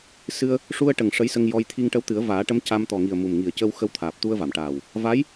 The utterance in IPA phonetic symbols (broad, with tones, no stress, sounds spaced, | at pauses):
s ɨ˧ ə̯ | ʂ u˧ ə̯ ʈ ə˨˩ ŋ ʂ ə˧˥ j s ə˧ ŋ j ɔ˧ j t̪ʰ i˧ ŋ ʈ ə˧ w t̪ ɨ˨˩˦ ə̯ v aː˨˩˦ ʈ ə˧˥ m c a˧ m t̪ ɔ˨˩ ŋ i˨˩ ə̯ m u˨˩ m ŋ i˨˩ ə̯ c ə˧ w x ə˧ w t̪ʰ aː˨˩ p̚ t̪ u˧ ə̯ v a˨˩˨ m ʈ aː˨˩ w | v a˧˥ j